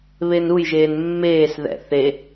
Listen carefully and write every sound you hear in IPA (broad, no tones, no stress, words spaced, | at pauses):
βenujʒeːn mːeːsðɛ̰ θe